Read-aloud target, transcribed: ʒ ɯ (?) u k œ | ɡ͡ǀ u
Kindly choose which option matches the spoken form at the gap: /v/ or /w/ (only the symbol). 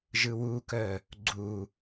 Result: w